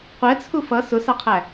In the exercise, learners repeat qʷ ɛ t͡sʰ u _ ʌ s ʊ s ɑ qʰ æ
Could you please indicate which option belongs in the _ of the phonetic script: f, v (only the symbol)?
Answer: f